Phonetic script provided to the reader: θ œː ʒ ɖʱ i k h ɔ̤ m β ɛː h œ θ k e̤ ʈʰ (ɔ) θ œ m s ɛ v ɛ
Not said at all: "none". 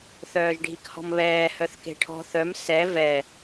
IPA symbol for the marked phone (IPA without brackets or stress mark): ɔ̤